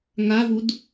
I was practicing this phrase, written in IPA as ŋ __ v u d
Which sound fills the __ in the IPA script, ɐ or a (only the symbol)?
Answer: a